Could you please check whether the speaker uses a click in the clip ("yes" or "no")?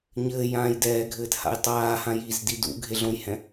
no